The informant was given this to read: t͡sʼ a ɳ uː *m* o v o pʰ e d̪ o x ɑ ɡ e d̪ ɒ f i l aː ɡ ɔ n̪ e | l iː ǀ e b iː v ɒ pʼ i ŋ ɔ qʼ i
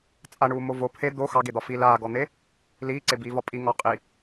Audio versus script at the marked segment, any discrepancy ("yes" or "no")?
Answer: no